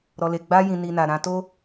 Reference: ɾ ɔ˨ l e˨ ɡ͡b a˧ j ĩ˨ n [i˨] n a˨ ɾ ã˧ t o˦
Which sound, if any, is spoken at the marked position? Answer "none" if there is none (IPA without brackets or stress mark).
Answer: i˨